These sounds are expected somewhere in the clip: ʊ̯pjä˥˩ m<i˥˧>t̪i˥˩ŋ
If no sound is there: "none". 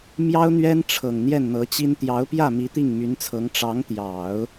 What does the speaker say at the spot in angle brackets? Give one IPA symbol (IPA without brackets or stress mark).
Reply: i˧˥